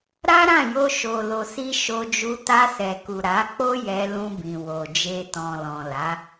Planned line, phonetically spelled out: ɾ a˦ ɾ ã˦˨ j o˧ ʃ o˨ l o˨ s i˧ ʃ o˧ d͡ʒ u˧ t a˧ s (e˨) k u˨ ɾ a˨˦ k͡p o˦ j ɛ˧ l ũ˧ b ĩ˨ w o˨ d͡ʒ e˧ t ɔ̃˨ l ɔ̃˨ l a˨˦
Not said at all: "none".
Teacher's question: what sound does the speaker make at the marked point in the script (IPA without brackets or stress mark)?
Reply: ɛ˨